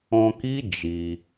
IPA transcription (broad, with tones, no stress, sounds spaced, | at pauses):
ɔ̃˧ k i˦ d͡ʒ i˧